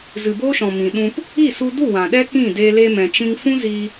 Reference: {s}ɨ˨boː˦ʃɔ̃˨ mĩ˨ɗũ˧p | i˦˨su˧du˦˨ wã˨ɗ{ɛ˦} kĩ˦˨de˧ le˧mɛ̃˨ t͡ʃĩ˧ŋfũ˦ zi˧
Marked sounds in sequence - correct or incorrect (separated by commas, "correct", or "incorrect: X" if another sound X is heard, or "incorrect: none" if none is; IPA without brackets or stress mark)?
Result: incorrect: z, correct